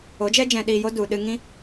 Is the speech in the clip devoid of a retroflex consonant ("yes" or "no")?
yes